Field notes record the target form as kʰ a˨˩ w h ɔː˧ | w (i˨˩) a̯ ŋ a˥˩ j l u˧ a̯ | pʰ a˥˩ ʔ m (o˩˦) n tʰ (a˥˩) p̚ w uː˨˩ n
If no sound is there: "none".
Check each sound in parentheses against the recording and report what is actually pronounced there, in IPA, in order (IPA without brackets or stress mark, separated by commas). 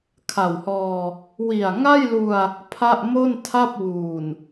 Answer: i˨˩, o˥˩, a˥˩